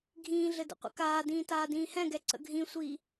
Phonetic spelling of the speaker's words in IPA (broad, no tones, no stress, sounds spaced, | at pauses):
ɡʱ ĩː ɮ ɘ d ə̰ qʷ ə̰ k aː d ĩː t aː d ĩː h ɛ̃ ɡ ɛ ǀ ə̰ ɡʱ ĩ sʷ iː